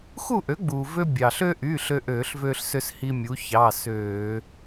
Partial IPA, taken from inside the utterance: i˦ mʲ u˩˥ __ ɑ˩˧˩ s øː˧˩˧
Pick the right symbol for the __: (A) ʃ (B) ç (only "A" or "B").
B